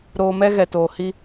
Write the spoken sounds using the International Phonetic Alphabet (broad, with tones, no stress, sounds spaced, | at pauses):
ɾ oː˧ m ɛ˦ ɣ ɛ˧ t oː˧ h i˦